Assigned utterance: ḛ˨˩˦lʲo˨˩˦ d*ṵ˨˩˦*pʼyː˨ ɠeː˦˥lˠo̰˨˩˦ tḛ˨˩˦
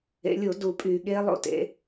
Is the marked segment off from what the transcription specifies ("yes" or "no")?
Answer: yes